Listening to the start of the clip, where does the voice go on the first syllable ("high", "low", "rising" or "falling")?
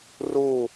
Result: falling